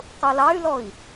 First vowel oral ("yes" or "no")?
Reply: yes